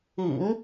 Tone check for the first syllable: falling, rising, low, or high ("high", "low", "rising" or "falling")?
low